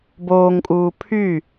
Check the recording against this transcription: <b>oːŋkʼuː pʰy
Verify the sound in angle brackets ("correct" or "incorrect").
correct